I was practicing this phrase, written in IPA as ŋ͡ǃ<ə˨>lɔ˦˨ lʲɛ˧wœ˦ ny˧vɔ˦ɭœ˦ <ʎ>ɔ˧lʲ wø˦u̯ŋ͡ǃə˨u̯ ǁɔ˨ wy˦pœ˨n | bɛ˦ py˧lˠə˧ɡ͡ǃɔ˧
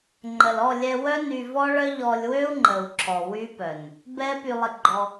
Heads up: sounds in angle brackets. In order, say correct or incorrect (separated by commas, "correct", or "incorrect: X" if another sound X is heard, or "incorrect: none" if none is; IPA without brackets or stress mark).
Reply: correct, correct